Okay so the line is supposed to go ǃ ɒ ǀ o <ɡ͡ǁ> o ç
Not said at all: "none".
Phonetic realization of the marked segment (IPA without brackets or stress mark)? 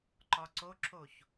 ǁ